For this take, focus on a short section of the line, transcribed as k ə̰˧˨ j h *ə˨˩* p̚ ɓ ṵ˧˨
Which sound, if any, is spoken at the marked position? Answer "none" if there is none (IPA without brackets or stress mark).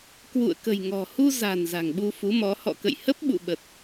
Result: ə˦˥